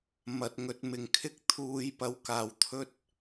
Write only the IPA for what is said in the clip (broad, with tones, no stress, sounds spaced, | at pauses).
m ɐ˨˥ t̚ ŋ ɵ˨˥ t̚ m ɪ˨ ŋ kʰ ɪ˥ k̚ t̪ʰ uː˨˧ j p ɐ˨˥ w k aː˨˩ w t̪ʰ ɵ˧ t̚